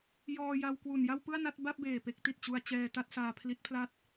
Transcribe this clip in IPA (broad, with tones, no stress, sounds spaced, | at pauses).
j ɔː˧ j a˧ w k w u˨˩ n j a˥˩ w p ɯ˥˩ a̯ n a˥˩ t̚ b a˥˩ p̚ b eː˨˩ p e˥˩ k̚ t i˨˩ t̚ t͡ɕ u˧ a̯ t͡ɕ ɛː˧ t a˥˩ t̚ s aː˧ pʰ l i˦˥ t̚ pʰ l a˥˩ t̚